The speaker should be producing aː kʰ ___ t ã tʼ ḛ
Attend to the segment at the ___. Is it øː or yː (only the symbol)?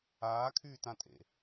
yː